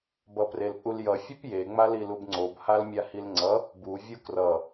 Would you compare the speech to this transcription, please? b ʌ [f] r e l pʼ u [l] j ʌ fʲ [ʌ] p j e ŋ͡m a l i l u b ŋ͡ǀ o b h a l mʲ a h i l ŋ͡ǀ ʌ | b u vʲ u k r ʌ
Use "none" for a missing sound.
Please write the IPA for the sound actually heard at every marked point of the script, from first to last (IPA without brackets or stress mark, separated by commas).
p, l, ʌ